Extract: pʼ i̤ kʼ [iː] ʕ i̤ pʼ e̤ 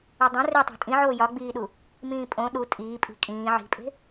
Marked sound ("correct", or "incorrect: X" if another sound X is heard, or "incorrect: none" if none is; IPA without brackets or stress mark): incorrect: ĩː